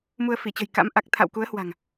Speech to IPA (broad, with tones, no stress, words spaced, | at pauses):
mu˧ə̯fi˧˩t͡ɕə̤˨˩jka̰˧˥m ʔa˨˩k̚t̪ʰa̰˧˨wku˨˦ə̯hwa̤˨˩ŋ